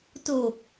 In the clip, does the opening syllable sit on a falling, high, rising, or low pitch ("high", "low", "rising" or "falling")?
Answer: low